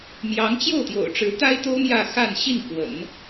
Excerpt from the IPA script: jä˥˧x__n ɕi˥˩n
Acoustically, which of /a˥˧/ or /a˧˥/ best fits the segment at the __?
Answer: a˥˧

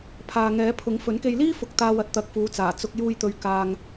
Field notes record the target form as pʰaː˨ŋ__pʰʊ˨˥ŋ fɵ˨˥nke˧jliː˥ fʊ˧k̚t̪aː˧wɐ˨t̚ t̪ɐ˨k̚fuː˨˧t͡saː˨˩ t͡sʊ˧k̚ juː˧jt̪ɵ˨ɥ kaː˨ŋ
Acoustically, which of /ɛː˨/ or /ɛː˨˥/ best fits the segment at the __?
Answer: ɛː˨˥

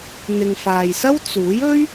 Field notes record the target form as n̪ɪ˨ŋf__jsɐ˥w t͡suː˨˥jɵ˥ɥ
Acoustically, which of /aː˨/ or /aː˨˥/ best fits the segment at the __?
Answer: aː˨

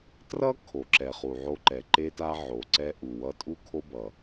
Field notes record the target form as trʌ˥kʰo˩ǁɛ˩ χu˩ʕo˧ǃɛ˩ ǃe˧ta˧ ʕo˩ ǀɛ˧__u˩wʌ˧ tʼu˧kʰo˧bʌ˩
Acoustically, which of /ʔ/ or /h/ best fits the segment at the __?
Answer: ʔ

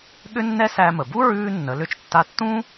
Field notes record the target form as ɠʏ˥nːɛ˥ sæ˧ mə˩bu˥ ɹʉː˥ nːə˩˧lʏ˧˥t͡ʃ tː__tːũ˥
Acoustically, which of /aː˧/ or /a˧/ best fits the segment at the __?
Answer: a˧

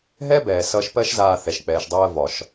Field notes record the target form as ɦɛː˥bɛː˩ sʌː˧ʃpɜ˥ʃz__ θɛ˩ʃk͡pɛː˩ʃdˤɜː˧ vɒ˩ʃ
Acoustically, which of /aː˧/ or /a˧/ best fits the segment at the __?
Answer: aː˧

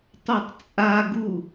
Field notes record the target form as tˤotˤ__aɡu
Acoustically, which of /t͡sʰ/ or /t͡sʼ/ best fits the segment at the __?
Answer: t͡sʼ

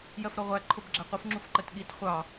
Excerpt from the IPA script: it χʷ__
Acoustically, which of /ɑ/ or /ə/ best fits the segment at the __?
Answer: ɑ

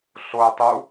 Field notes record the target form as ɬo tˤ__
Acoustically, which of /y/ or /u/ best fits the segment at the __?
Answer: u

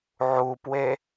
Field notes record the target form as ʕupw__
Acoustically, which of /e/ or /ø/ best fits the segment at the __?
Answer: e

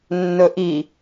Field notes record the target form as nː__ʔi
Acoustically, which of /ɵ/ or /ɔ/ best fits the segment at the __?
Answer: ɵ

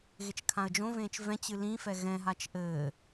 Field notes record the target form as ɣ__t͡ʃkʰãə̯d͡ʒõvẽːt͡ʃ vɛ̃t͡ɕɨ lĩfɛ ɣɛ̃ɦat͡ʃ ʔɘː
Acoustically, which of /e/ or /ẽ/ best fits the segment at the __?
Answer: e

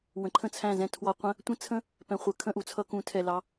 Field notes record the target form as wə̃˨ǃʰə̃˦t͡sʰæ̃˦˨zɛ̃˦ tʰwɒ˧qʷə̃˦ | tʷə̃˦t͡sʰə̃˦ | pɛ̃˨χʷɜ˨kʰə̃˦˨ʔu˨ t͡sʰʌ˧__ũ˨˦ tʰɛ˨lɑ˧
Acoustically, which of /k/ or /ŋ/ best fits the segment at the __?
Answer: k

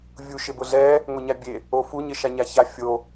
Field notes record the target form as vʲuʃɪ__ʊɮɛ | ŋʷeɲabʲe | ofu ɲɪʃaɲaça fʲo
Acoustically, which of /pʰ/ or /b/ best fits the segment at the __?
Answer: b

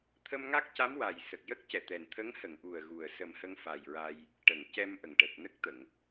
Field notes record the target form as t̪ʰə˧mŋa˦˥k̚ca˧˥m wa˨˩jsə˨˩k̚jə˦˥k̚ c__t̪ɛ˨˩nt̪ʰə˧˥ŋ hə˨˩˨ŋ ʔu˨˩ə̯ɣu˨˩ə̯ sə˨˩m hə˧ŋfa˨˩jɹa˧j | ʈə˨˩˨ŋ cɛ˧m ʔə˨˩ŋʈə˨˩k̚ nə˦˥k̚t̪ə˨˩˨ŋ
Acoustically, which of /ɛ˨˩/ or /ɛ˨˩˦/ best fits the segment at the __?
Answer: ɛ˨˩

